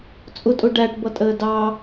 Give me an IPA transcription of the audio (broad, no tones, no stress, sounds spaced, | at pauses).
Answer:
t͡sʼ ʊ tʼ ʊ ɖ æ ʈ b ʌ tʼ əː d ɑ